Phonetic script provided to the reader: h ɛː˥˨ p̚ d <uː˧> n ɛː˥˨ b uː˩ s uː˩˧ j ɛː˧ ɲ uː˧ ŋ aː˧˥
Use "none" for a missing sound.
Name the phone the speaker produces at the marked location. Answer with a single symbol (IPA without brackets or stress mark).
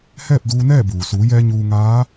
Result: uː˧